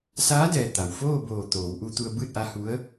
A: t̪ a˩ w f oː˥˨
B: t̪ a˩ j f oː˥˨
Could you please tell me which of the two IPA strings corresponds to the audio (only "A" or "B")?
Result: A